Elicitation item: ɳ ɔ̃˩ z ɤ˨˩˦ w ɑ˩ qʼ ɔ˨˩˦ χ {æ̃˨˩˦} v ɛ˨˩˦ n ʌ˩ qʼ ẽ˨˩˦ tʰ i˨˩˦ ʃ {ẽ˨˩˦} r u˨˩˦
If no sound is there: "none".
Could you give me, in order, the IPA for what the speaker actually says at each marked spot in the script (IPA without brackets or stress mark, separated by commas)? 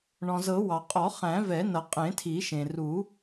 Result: æ̃˨˩˦, ẽ˩